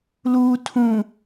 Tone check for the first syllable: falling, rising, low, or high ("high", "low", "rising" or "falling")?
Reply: low